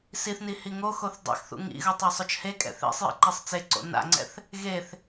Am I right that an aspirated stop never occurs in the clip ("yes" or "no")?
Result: yes